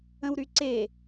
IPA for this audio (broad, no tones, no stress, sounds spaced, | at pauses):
ə̃ w ɾ y ǀ e